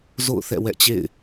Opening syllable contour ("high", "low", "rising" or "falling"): falling